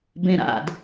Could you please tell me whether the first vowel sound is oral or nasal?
nasal